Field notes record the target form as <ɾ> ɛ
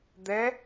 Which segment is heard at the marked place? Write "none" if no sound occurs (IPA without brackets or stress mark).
d̪